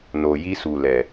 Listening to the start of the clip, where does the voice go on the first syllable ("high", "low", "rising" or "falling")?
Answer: low